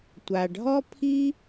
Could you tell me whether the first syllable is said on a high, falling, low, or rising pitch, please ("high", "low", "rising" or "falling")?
low